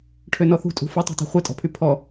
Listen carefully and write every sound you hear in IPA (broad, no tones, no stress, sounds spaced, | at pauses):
ʈʰ ø n ɔ θ ṳ tʼ ṳ f u tˤ ṳ tˤ o̤ χʷ ɛ tʼ ɔ̤ pʰ y pʰ ɔ